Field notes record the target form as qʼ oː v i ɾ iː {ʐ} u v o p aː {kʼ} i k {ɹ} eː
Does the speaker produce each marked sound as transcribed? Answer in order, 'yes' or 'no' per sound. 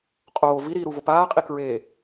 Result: no, no, yes

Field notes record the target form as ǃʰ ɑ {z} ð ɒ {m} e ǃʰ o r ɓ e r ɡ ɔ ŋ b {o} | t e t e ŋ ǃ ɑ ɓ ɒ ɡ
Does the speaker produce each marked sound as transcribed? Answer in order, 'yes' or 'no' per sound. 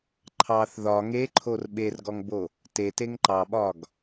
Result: no, no, yes

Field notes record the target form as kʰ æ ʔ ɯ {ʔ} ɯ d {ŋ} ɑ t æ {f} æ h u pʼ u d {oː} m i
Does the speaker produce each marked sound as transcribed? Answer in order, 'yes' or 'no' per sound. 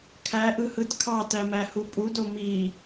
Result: no, no, no, no

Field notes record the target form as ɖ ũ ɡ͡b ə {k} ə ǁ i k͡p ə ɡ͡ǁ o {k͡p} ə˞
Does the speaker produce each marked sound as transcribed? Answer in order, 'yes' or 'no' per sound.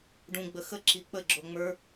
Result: no, no

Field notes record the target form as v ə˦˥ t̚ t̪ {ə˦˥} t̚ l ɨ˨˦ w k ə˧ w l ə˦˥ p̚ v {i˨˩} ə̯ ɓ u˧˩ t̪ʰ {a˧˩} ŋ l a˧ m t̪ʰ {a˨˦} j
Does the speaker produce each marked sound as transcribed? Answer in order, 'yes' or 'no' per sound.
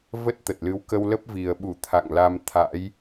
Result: no, yes, no, no

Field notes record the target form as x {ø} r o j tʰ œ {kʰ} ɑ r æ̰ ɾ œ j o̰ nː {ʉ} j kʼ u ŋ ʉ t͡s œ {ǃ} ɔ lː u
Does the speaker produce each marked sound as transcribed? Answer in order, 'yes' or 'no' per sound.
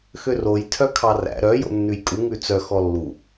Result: yes, yes, yes, no

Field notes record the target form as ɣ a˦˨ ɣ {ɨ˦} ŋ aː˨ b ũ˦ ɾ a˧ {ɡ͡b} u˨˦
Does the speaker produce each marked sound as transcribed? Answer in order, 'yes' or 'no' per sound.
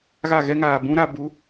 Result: no, no

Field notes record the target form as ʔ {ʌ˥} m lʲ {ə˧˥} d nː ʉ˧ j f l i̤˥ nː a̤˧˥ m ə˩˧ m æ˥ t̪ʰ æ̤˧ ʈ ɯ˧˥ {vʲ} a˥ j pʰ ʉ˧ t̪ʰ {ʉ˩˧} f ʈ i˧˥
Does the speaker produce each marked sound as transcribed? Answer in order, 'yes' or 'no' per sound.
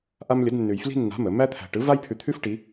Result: no, yes, no, no

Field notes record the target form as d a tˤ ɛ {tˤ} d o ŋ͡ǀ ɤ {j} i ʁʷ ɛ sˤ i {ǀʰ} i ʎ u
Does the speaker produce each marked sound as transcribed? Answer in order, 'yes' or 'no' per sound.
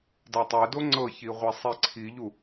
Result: no, no, yes

